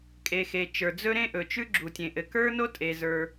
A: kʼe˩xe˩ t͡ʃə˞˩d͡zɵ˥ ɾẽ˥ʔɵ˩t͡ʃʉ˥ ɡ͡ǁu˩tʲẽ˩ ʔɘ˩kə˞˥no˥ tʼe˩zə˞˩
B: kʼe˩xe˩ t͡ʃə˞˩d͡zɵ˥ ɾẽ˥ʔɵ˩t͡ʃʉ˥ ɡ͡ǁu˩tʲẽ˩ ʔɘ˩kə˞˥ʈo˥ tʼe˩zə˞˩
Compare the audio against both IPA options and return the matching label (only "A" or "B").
A